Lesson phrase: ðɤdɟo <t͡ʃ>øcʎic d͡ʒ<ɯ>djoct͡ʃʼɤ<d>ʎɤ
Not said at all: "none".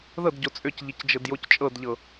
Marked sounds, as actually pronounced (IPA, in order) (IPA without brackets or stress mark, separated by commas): t͡sʼ, ɤ, d